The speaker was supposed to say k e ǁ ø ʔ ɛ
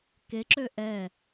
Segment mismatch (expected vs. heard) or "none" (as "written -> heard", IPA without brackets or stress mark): none